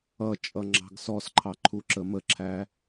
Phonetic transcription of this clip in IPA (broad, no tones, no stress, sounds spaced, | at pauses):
ʌ t͡ʃʼ ʌ ŋ͡ǁ ɑ̤ ɡ s ɔ s ǃʰ ɑ ǃʰ u ǁ ə m ə ǁʰ æ